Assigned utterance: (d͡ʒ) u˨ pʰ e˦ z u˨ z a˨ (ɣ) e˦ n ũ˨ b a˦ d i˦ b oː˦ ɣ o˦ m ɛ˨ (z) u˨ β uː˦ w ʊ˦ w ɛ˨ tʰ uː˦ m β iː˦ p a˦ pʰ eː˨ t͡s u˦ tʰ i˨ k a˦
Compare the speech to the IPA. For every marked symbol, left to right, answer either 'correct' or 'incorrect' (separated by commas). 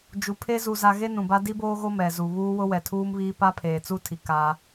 correct, correct, correct